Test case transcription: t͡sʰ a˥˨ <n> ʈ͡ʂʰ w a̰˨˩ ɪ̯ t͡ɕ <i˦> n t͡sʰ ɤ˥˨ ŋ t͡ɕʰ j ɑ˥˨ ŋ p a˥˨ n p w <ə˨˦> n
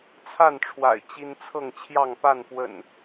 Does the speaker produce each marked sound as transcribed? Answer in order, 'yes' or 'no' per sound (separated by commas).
yes, yes, no